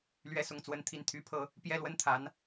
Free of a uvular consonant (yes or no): yes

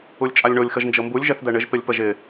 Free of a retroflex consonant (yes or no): no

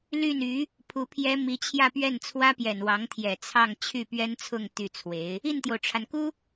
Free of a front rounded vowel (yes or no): no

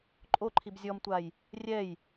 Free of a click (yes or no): no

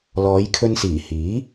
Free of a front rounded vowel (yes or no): yes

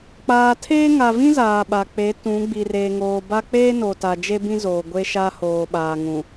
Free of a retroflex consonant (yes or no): yes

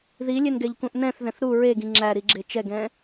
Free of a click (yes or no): no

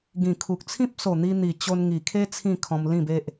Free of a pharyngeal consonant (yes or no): yes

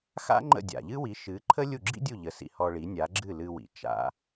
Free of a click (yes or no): no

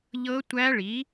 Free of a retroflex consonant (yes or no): no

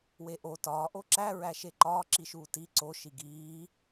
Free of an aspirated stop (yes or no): yes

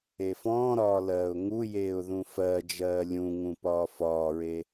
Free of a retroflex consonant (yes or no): yes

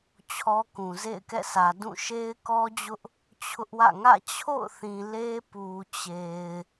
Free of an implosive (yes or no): yes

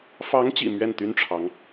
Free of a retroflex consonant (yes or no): no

